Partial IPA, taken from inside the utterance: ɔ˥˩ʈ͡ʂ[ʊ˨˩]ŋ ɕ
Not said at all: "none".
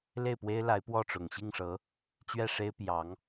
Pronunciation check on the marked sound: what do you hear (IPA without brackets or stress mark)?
ʊ˨˩